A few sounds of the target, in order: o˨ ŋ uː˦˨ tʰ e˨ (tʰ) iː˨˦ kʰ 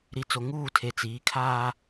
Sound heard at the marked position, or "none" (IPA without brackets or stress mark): t͡s